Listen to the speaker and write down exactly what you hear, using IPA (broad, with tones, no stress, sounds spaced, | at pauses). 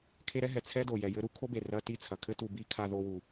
kʰ e˦ ɾ ɛ˦ ɦ ɛ˩ t͡sʰ ɛ˥ d o˩ j ɛ˨ j ɘ˦ ɾ u˦ kʰ o˥ b e˩ r ɐ˦ t i˦ t͡sʰ ɐ˩ kʰ ɘ˥ t u˨ b i˥ kʰ a˦ ð o˦ w u˩